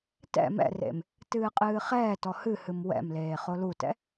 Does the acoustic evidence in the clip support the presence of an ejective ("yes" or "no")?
yes